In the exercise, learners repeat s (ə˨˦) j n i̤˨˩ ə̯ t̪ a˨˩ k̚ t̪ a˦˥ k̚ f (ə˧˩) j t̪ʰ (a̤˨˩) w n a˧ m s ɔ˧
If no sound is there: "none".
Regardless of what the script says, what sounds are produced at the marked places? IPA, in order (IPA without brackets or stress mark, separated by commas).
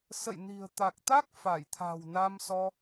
ə̰˧˨, a˧˩, a̤˨˩